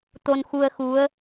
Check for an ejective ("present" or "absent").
absent